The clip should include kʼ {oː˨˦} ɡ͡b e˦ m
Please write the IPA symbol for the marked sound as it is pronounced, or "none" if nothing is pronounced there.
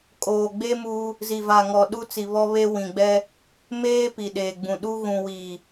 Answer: oː˨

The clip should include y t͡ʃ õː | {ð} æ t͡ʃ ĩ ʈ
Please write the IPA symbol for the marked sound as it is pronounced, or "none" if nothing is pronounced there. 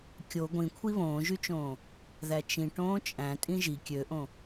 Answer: ð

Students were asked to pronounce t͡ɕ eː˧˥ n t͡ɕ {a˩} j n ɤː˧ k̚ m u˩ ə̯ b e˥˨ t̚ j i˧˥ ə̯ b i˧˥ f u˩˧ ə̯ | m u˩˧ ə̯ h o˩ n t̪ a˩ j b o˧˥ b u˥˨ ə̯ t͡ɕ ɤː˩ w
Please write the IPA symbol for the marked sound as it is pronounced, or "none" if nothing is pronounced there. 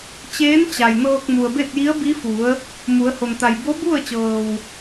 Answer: a˩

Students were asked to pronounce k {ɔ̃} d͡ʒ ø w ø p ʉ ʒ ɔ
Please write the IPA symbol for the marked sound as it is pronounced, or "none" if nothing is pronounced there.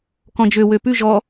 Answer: ɔ̃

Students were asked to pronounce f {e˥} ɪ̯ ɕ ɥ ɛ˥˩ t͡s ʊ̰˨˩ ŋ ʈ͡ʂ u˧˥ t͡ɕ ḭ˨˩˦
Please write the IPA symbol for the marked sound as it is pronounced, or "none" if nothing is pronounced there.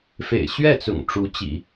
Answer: ḛ˨˩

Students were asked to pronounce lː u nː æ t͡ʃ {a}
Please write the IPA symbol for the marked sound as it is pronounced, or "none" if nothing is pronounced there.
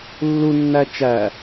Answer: æ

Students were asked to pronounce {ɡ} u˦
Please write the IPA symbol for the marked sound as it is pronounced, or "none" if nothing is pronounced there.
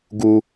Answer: ɡ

